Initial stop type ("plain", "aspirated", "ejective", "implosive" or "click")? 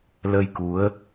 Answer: plain